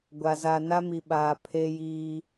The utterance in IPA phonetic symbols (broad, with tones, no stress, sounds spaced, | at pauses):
ɡʷ a˨ z aː˨ n a˦ m i˨ ɓ aː˨ pʰ eː˦ j iː˦